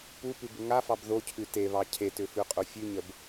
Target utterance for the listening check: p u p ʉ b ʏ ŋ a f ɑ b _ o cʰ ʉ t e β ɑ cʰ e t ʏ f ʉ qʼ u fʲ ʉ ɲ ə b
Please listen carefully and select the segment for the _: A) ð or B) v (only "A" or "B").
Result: A